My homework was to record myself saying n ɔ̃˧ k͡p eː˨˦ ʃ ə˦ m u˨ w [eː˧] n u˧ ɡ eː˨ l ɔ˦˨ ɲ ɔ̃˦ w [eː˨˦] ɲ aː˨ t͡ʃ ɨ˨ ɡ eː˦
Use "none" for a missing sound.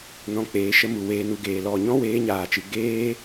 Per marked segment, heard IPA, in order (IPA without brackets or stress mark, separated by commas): eː˧, eː˨˦